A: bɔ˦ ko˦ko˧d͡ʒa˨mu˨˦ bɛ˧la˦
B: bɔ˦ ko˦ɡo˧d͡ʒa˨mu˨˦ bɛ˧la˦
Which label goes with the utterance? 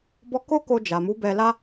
A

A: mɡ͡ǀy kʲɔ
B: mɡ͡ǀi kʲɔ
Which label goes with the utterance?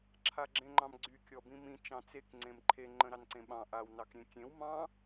A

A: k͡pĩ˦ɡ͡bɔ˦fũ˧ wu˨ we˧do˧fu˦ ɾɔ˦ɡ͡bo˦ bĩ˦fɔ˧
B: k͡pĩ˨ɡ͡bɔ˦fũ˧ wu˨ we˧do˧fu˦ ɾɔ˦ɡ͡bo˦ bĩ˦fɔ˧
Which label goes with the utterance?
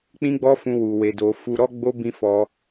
A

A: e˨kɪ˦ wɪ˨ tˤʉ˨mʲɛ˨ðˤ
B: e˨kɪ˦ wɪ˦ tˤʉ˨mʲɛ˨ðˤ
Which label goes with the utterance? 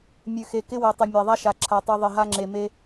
A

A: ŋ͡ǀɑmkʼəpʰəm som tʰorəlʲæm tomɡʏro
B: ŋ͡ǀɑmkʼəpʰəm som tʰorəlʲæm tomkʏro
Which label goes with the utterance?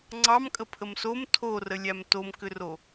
B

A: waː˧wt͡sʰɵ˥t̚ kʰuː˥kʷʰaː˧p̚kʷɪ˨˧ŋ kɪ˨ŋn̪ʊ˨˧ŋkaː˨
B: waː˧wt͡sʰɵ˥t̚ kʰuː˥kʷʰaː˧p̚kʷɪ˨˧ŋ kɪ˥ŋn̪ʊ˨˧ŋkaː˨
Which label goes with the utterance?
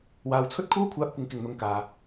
A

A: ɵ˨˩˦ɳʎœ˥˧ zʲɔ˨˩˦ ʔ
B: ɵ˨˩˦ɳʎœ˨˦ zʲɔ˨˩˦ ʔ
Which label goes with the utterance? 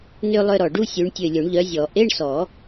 B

